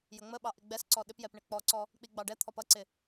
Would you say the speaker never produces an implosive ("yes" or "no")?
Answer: no